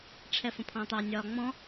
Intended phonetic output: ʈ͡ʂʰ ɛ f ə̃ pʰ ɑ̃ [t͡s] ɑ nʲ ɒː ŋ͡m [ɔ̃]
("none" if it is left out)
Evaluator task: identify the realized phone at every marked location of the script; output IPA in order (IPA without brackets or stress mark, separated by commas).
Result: t̪, ɔ̃